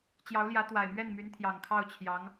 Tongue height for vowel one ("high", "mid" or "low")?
low